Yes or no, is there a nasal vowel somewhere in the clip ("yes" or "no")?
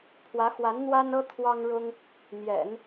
no